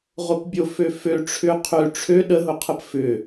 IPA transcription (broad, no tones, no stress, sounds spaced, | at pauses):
ʁ o p bʲ o f ø f ø ʈ͡ʂʰ ʏ qʰ ø ʈ͡ʂʰ ø ɗ ə ɦ ʊ qʰ ə p f ʏ